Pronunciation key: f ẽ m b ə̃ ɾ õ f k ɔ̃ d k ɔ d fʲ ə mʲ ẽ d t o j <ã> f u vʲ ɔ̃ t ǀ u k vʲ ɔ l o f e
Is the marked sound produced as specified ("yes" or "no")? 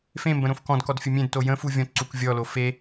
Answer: no